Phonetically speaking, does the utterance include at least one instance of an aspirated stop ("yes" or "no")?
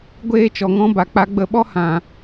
no